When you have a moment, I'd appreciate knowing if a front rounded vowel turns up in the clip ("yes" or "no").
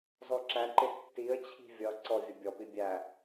no